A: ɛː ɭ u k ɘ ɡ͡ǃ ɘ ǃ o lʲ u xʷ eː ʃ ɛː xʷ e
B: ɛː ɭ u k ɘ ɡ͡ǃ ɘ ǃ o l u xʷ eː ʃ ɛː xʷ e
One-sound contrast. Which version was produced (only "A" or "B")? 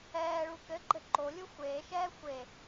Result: A